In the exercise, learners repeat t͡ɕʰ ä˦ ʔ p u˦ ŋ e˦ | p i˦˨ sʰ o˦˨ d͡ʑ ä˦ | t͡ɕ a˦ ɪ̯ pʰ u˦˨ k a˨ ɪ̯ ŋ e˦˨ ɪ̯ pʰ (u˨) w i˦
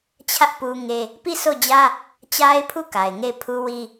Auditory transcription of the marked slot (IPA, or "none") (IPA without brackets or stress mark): u˦